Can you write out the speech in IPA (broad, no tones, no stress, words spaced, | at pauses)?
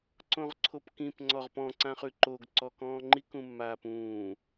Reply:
ǀõʁǀʰopkĩp ŋ͡ǀɔʁpɔ̃ ǀãχʉǃoɡ ǀɔkɔ̃ːŋ͡ǃik ũmːaːpũː